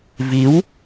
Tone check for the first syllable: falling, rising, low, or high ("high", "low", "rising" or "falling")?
rising